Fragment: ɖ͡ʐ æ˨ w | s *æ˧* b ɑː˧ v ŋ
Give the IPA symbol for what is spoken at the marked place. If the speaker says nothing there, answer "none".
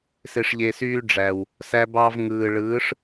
æ˧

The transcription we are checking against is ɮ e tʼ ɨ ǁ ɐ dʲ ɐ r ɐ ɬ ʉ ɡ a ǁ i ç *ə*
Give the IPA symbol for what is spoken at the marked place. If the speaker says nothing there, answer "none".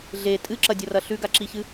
ɨ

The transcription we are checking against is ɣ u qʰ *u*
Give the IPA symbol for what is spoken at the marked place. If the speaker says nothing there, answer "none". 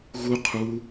u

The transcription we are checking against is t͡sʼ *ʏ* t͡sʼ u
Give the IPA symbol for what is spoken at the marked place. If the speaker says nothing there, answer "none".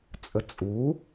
ə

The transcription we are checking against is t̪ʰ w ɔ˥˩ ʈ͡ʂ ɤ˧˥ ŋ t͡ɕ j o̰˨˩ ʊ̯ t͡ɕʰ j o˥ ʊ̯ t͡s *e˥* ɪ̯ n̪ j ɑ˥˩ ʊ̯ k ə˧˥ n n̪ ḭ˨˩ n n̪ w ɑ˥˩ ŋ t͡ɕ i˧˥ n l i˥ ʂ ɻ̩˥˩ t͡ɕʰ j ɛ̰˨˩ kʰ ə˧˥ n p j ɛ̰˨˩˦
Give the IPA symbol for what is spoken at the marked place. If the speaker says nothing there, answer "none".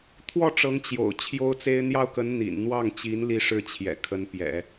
e˥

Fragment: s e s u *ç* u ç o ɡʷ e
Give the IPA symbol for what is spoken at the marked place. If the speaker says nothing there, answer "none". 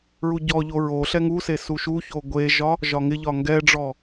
ʃ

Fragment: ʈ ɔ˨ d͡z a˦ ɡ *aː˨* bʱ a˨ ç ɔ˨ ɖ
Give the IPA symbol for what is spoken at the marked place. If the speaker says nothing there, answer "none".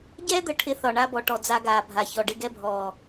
aː˨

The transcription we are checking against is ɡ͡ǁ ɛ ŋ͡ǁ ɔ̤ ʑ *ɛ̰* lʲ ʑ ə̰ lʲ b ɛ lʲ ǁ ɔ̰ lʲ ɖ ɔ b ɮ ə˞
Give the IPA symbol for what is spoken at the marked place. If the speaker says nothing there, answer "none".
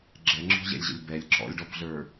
ɛ̰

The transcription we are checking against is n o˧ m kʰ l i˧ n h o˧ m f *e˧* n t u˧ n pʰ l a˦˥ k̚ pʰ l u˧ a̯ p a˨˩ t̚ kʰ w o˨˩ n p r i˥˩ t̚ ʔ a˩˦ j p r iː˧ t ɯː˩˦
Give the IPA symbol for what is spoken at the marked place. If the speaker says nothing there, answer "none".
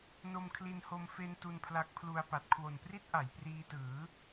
e˧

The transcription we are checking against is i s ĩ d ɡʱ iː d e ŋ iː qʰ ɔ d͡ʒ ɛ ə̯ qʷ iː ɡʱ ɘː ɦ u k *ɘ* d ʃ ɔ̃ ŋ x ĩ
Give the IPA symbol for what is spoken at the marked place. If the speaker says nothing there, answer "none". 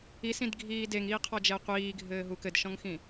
ɘ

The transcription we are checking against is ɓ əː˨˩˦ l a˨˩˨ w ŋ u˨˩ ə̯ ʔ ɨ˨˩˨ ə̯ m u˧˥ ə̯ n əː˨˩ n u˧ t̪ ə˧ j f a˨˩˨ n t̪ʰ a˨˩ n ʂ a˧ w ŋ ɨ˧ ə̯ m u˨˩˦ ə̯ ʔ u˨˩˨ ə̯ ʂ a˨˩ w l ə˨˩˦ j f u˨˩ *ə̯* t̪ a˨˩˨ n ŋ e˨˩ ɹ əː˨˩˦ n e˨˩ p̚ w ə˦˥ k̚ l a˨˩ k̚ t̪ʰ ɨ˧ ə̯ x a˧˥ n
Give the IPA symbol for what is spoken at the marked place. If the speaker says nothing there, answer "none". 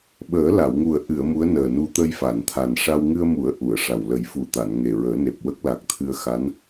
none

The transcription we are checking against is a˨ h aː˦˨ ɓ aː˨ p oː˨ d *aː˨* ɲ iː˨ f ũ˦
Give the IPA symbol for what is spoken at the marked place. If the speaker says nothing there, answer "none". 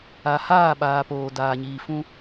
aː˨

